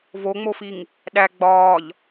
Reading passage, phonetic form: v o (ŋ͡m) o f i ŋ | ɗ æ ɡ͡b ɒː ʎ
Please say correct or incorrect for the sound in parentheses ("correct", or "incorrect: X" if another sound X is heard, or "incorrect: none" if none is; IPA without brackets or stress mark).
correct